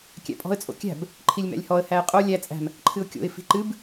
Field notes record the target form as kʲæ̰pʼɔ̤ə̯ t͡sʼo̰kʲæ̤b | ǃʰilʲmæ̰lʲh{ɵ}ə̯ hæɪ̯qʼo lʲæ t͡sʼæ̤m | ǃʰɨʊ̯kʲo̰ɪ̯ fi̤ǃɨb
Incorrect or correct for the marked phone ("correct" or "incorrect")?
incorrect